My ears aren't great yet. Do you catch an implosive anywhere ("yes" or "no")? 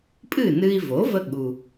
yes